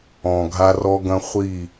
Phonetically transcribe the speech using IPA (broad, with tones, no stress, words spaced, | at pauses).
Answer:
ɔ̃˨ ɡʱa˦rɔ˦ɡɐ̃˦χʷi˦˨